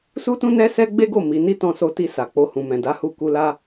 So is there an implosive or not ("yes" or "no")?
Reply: no